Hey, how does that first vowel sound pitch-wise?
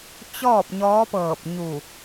falling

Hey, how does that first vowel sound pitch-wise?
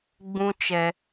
high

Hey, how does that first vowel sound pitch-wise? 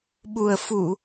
low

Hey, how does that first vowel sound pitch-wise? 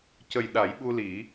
low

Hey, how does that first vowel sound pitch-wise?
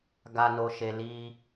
low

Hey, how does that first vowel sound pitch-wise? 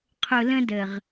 low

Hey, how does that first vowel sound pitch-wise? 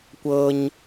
high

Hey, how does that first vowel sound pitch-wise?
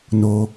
high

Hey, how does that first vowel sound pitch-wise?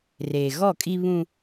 low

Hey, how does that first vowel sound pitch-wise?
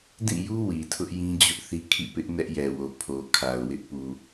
falling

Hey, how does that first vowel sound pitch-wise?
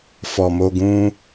low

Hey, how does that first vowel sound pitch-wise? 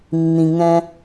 low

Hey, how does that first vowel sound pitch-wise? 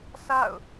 falling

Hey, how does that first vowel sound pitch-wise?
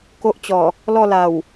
high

